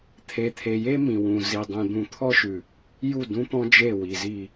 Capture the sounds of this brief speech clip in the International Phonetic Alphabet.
t̪ʰ e˨ t̪ʰ e˨ j e˦ m ĩ˨ w ũ˨ z i˨ dˤ ẽ˨ d̪ ũ˨ t̪ʰ ɔ˦ ʃ ʉ˨ | j u˦˨ d ũ˦ t̪ ɔ̃˦ d͡ʒ e˦˨ w i˨ z i˦˨

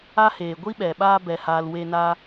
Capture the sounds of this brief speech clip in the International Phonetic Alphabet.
a˦ h eː˨ ɡʷ i˦ ɓ ɛ˨ ɓ aː˧ b ɛ˨ h aː˨ l w e˧ n a˦

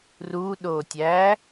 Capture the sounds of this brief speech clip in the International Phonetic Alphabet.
r u ɗ o tʲ æ

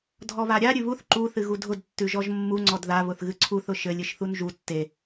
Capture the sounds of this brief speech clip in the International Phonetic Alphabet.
dʱ ɔ β a ɾʲ a ɾʲ ʉ β u θ ǃ u θ ɨ ɣ u dʱ ʊ d tː ʉ ʒ ɔ ʒ mː u ŋ͡ǀ ɔ d ð a β ʊ θ ɣ ɨ ǀʰ u θ ʊ ʃ ɘ lʲ ɨ ʃ θ u n ʒ u tː e

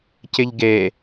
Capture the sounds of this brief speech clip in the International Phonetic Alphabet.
c ɪ ʎ ɡ e

